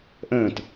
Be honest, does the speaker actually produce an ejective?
no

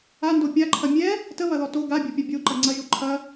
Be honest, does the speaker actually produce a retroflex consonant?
no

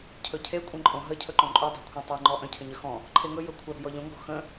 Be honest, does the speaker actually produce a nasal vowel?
yes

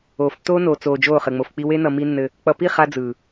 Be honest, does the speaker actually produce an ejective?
no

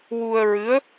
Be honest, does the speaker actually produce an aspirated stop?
no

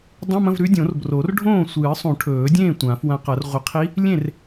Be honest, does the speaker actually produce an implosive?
no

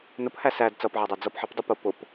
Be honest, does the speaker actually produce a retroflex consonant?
no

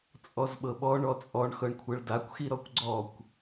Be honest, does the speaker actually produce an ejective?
yes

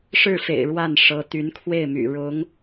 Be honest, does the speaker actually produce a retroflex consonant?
yes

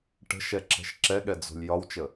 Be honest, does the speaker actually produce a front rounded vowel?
no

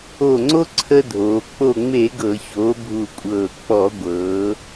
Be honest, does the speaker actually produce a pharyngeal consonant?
no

